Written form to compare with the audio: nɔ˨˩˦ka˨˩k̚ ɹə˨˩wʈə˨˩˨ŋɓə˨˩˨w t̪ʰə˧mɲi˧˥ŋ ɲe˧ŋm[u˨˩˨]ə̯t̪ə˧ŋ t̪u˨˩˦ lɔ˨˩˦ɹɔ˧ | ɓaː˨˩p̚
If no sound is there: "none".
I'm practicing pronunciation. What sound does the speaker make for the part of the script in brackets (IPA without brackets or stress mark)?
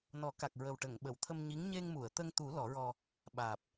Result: u˨˩˨